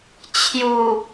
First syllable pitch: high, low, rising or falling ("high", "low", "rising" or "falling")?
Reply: low